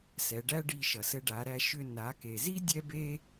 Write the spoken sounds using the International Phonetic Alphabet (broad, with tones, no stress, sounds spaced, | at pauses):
s ɛ˩˧ ɖ æ˥ ɖ i˧ ʃ ʌ˩ s ɘ˧ ɖ a˩˧ ɾ æ˧ ʃ ʏ˧ n a˩˧ k e˩ z i˥ dʲ ɛ˥ b e˥